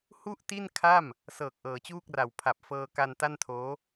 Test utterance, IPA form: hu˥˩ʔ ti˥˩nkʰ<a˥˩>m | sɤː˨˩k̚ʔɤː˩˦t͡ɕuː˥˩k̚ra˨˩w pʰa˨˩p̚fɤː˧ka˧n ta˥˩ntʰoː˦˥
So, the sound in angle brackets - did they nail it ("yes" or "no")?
yes